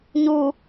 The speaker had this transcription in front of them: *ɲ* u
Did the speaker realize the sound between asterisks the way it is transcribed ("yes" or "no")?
yes